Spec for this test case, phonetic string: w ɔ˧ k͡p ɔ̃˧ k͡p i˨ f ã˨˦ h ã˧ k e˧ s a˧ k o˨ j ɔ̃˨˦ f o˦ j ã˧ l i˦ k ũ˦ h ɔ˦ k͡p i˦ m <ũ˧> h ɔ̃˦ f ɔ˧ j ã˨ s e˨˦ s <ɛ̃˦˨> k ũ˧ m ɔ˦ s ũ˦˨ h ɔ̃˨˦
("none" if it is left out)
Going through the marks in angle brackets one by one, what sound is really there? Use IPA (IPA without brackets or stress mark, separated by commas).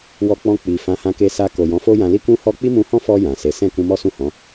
ũ˧, ɛ̃˦˨